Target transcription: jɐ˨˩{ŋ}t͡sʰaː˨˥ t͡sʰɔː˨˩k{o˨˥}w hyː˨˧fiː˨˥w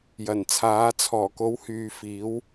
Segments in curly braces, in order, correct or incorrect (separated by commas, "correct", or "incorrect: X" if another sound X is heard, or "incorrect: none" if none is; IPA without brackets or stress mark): incorrect: n, correct